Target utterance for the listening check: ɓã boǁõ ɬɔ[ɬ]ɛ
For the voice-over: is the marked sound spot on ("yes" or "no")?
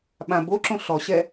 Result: no